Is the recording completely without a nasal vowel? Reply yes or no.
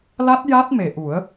yes